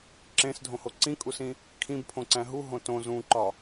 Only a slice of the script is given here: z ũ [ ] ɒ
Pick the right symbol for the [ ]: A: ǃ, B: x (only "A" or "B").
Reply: A